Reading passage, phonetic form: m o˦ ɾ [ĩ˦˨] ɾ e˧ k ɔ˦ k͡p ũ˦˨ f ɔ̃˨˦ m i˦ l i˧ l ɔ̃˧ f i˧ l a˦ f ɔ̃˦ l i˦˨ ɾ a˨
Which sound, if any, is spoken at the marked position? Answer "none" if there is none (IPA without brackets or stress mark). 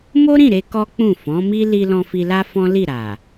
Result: ĩ˦˨